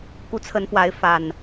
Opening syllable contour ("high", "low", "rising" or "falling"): rising